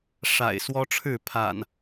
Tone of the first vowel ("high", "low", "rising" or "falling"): low